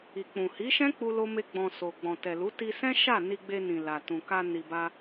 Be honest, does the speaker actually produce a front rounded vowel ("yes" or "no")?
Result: no